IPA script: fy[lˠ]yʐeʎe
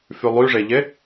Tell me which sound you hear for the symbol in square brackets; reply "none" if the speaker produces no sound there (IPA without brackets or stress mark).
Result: lˠ